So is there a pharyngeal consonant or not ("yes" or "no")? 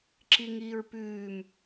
no